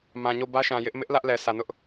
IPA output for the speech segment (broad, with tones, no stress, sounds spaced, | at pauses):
m ã˨ ɲ o˦˨ b ä˦ ʃ ã˨ j ɪ˦ ʔ m ɪ˦ ʔ l ä˦ ʔ l ɛ˨ sʰ ä˨ n ʊ˦ ʔ